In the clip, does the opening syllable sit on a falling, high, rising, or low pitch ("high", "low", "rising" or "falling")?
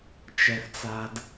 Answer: high